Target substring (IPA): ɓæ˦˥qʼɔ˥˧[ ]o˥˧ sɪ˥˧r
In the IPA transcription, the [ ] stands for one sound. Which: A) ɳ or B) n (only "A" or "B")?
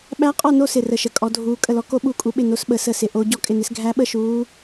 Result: B